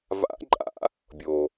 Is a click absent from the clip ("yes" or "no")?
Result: no